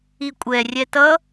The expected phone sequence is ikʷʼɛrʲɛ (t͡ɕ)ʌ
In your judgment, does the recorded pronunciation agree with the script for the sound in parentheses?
no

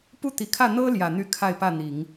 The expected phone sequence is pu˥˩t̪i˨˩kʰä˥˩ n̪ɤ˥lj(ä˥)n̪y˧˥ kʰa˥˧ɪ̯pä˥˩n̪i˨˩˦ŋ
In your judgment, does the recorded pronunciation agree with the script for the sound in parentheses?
no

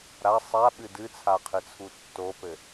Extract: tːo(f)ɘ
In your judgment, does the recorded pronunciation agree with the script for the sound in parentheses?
no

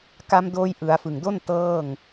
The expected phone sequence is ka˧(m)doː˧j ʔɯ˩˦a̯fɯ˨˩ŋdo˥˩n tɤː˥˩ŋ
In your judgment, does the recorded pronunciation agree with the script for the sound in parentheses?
yes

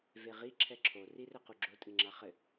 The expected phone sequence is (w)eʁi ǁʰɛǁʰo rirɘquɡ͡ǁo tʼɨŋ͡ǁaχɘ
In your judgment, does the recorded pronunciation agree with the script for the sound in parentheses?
no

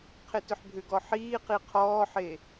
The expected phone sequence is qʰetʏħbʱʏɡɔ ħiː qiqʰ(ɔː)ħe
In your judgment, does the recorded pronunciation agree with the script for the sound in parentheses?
yes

